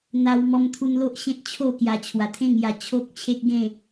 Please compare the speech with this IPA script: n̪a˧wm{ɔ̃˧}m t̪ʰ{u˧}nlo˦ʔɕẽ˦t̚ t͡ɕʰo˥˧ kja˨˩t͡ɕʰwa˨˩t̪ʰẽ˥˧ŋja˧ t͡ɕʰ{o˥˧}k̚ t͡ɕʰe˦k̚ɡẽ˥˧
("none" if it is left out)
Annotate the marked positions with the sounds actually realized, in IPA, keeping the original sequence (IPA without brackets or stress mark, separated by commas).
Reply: ɔ˧, u˧, o˦